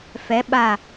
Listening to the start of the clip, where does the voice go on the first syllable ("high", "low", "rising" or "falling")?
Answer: rising